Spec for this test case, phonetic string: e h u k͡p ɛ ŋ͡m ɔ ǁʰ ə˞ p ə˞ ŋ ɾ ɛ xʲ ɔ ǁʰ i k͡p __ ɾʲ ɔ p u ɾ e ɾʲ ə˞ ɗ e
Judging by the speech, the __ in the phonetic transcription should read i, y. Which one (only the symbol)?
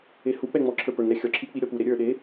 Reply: i